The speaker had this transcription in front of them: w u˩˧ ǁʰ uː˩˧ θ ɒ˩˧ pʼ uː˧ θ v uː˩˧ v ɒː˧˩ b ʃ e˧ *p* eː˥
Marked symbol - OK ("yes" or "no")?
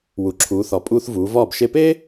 yes